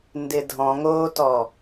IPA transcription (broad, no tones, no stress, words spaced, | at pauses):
ndɪdʱɔ̃ŋoːtɔ